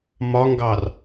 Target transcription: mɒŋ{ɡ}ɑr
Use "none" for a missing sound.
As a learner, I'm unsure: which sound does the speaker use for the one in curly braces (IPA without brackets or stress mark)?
ɡ